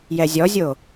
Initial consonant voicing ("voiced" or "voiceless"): voiced